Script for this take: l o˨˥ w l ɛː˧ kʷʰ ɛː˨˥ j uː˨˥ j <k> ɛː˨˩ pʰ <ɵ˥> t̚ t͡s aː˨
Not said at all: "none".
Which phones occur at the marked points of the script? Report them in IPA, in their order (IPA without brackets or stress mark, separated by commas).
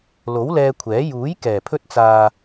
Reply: k, ɵ˧